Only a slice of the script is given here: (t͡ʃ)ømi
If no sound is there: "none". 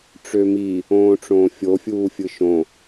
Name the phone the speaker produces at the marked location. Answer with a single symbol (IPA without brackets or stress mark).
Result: ʈ͡ʂ